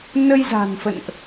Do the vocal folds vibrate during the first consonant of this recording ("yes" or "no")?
yes